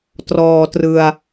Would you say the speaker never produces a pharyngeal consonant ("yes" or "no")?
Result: yes